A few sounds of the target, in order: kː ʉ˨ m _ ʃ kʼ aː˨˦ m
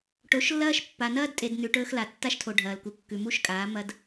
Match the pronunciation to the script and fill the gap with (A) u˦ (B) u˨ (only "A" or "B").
A